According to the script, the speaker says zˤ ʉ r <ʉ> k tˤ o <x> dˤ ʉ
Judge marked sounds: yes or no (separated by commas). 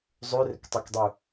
no, no